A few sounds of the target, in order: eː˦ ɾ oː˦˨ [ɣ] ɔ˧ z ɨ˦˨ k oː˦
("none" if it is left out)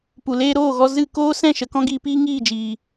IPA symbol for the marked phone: ɣ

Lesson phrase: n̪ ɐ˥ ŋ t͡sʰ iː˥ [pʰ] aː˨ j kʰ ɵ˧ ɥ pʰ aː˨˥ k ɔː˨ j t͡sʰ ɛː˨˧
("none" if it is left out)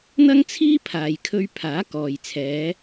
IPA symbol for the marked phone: pʰ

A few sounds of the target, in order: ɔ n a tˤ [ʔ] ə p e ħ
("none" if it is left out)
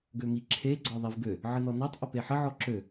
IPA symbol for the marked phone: ʔ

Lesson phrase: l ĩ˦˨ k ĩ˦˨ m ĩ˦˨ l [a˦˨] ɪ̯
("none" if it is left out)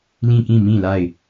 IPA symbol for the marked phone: a˦˨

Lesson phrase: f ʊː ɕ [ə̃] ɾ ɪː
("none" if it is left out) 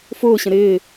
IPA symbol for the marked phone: ə̃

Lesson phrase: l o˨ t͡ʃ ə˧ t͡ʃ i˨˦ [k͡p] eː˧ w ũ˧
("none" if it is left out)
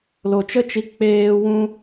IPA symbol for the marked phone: k͡p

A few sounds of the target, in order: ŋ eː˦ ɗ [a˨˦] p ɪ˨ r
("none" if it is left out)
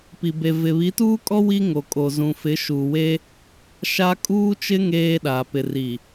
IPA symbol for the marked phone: a˨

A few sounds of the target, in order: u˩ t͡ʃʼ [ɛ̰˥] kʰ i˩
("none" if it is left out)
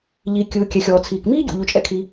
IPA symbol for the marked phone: ɛ̰˥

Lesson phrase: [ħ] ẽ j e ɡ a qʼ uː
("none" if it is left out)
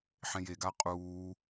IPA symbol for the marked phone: ħ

